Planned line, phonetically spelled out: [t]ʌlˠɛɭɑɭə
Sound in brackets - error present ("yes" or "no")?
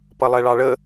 yes